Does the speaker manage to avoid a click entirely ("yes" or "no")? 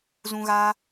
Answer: yes